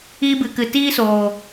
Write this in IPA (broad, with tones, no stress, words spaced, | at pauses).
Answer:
iː˧bɨ˨kɨ˨ tiː˦soː˨